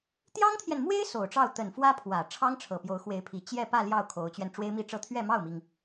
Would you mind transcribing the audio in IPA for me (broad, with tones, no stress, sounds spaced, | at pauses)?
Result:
t̪ j ɑ˥ ŋ t̪ʰ j ɛ˨ n m w e˥ ɪ̯ s o˨˩ ʊ̯ ʈ͡ʂ ɑ˥˩ ʊ̯ t̪ ə˨˩ n f w ä˥ pʰ w ä˨˩ ʈ͡ʂʰ ɑ˥ ŋ ʈ͡ʂʰ ɤ˨˩ p j o˧˥ ʊ̯ x w e˧˥ ɪ̯ pʰ i˨˩ t͡ɕ j ɛ˥˧ p ä˥˧ l j ɑ˥˩ ʊ̯ kʰ o˧˥ ʊ̯ t͡ɕ ɥ ɛ˧ n ʈ͡ʂ w e˥ ɪ̯ m i˥˧ ʈ͡ʂ ɤ˥˧ t̪ʰ ɥ ɛ˥˧ m ɑ˥˩ ʊ̯ m i˩ ŋ